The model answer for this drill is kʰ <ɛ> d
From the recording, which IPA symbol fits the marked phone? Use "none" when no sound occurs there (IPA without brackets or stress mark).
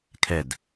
ɛ